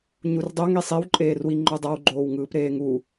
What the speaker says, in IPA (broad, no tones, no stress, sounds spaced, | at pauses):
ɲ u r dˤ o ŋ i sˤ i w ǃʼ eː r w i ŋ͡ǃ o dˤ a w ɡ͡ǃ oː w ŋ ɯː p ɾ eː ŋ u